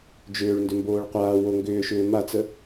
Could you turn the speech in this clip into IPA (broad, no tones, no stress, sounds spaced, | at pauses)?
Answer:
d͡ʒ ʏː ɭ n d ʏ m b oː ɭ qʷ aː w o ŋ ɡ ʏː ʃ ʏː m a t͡s ə